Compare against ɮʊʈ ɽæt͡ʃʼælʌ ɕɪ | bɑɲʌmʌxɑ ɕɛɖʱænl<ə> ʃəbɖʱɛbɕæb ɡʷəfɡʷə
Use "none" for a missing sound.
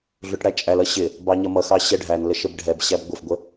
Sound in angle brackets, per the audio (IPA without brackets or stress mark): ə